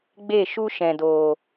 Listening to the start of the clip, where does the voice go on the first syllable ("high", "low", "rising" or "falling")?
falling